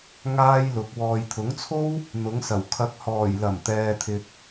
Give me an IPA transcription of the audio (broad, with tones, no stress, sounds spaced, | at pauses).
ŋ aː˥ j l ʊ˨˥ k̚ w ɔː˨ j t̪ʰ ʊ˨˥ ŋ t͡sʰ o˥ w | n̪ ʊ˨˥ ŋ s ɐ˨˩ w kʰ ɐ˨˥ k̚ h ɔː˨˩ j l ɐ˨˩ m t̪ ɛː˨ t̪ʰ ɪ˨ k̚